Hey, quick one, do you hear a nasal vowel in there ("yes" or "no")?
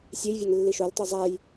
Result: no